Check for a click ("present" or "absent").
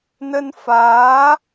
absent